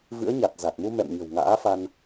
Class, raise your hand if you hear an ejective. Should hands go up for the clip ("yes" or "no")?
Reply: no